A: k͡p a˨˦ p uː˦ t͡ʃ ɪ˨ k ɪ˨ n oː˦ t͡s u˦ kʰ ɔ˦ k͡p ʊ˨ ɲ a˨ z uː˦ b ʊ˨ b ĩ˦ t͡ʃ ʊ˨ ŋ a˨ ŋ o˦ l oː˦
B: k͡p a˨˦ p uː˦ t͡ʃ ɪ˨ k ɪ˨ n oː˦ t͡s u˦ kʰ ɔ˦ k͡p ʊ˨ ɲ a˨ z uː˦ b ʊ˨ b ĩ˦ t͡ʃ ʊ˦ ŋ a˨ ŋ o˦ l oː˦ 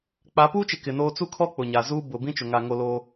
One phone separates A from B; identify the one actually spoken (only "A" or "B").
A